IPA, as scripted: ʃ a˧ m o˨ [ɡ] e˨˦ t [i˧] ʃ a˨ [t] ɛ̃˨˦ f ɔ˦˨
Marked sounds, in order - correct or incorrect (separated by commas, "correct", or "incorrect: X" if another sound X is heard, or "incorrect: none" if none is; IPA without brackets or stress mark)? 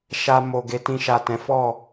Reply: correct, incorrect: ĩ˧, correct